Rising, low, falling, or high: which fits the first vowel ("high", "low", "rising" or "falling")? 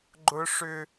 high